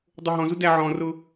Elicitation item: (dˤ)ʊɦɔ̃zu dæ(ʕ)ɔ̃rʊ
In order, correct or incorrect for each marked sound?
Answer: correct, correct

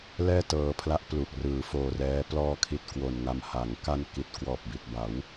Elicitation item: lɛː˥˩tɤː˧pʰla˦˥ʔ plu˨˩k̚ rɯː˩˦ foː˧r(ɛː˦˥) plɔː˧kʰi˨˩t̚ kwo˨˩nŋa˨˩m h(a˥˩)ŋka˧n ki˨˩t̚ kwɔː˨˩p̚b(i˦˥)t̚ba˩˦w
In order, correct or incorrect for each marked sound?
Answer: correct, incorrect: a˩˦, incorrect: i˨˩

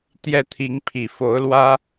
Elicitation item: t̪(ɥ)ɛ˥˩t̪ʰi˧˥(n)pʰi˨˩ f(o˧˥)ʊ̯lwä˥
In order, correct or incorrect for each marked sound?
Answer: incorrect: j, incorrect: ŋ, correct

